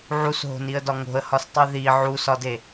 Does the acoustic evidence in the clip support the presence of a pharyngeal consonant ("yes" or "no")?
yes